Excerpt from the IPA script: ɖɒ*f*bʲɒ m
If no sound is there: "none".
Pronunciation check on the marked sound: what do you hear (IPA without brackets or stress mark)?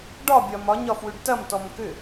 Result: none